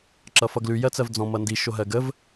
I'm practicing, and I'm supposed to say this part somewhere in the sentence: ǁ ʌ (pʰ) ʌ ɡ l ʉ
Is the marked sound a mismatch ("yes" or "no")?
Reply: yes